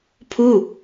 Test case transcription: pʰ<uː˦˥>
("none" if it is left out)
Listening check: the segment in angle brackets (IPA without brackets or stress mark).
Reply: uː˥˩